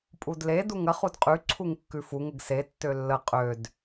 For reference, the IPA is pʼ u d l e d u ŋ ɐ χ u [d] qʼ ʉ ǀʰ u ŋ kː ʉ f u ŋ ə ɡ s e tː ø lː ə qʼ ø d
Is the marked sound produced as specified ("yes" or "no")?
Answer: yes